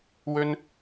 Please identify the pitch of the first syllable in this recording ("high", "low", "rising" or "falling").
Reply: high